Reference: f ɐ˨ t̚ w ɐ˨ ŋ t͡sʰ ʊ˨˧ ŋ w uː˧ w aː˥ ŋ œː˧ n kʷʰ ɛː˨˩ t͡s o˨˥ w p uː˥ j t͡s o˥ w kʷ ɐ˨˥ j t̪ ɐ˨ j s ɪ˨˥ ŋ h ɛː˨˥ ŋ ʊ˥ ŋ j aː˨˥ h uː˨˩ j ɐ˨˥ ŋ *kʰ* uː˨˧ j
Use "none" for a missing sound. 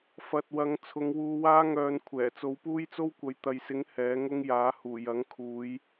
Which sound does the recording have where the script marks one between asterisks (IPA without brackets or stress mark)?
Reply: kʰ